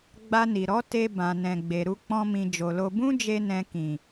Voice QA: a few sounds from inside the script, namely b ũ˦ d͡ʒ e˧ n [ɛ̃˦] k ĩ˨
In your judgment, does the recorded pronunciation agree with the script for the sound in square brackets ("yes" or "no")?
no